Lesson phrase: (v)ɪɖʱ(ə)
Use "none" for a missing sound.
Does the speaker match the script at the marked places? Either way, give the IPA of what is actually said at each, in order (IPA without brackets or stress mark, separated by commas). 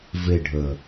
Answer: v, ə